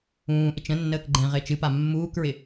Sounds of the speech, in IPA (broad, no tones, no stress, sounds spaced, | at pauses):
ũː ʔ ɪ t͡ʃ ə̃ nː əː k ɡ͡ǃ ɛ̃ ʁ ɪː t͡ʃ ɨ p a mː uː k ɹ ɪ